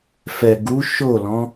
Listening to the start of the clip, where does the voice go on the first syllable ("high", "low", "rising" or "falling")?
low